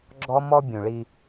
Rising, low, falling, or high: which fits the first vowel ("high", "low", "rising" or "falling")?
high